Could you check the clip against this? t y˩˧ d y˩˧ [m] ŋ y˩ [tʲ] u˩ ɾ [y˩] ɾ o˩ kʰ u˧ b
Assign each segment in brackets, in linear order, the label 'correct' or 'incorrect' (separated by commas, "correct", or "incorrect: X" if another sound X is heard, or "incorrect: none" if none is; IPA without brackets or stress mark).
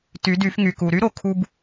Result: incorrect: f, incorrect: k, incorrect: y˥